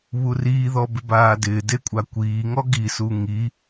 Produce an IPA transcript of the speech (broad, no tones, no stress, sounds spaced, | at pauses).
β u r iː ð ɔ b ɪ b aː d ɪː d e kʷʼ a kʷ iː ŋ ɔ ɡ i s u ŋ i